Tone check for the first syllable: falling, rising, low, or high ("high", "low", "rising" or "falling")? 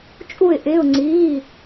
falling